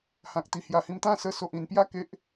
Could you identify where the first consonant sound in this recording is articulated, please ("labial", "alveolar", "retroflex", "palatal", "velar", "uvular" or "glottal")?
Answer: glottal